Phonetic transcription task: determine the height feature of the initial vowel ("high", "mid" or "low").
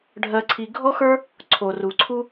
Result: mid